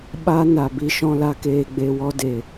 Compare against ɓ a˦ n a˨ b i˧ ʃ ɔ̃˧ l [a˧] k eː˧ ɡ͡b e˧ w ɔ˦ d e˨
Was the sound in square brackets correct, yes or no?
yes